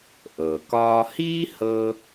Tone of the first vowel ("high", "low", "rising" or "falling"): low